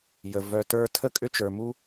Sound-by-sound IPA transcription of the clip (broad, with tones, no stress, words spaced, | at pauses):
jə˧ vœ˧ tə˞˥ tʰə˥kʼʏ˥t͡ʃə˞˧mu˥